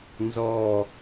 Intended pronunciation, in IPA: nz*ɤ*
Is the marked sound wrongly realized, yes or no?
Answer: yes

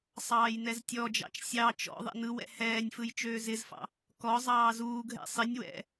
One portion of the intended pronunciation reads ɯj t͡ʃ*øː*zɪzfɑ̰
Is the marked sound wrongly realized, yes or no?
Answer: no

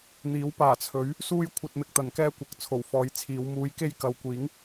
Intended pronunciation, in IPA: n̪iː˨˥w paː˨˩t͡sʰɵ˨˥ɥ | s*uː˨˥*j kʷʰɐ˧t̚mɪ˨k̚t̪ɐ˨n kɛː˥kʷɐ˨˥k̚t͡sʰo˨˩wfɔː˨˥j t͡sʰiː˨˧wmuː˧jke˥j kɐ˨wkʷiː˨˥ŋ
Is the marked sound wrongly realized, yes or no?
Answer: yes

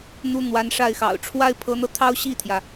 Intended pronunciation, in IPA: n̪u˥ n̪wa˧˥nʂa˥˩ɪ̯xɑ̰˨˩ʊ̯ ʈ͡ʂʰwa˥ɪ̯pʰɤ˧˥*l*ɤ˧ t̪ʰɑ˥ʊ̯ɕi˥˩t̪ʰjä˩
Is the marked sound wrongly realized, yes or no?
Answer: yes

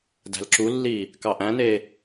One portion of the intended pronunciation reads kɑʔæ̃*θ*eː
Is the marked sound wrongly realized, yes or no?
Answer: yes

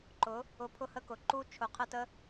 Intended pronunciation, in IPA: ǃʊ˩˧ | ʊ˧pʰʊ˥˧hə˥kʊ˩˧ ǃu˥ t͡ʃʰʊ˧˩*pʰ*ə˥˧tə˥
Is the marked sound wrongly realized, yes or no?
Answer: yes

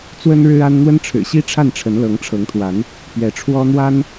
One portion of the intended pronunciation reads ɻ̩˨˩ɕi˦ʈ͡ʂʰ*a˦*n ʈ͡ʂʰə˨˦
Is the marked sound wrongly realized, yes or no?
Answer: yes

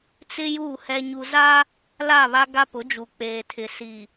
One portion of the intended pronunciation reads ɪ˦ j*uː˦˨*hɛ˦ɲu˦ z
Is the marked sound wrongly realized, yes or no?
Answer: no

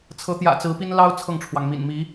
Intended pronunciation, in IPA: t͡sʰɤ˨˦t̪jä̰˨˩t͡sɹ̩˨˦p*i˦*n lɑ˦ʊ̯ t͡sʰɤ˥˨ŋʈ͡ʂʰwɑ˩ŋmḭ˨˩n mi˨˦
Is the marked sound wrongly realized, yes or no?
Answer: no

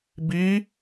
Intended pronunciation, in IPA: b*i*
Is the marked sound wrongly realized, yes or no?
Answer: no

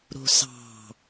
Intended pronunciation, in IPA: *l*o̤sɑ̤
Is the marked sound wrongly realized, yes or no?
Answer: yes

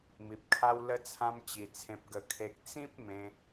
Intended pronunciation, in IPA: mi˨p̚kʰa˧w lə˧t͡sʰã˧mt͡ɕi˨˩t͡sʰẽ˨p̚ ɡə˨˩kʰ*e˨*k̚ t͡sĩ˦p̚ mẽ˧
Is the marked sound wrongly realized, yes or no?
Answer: no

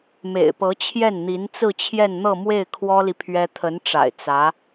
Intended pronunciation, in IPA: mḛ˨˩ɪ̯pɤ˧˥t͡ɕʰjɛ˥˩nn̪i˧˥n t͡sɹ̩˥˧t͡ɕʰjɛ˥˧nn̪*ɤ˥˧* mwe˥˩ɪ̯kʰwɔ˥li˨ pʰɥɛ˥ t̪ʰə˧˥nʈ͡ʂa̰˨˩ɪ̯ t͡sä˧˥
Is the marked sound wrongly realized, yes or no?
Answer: no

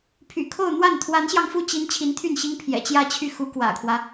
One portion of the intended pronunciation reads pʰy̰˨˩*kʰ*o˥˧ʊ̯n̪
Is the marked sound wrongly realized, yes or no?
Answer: no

